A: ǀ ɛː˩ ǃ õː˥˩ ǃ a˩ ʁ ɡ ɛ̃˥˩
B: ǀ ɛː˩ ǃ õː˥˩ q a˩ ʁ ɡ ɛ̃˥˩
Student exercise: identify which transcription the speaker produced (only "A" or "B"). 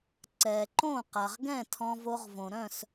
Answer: B